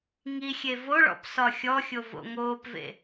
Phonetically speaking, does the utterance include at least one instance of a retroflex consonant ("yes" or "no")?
yes